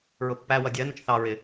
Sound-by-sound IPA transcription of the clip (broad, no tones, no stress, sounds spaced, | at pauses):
ɹ ʊ pː æ w ʌ dʲ ɜ n ʊ t͡ʃ θ ɑ ɹ ɪ